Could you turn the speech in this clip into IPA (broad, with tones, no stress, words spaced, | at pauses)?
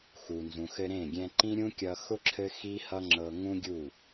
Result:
xu˨nzũ˨xɘ˧ ɾẽ˦˨ɡʲɛ̃˧ ǃĩ˦ɾʲũ˦kʲʌ˧ xʊ˦ ǁʰɘ˦xi˦hʌ˦ŋ͡ǁɤ˧ ŋũ˦ɡʲu˦˨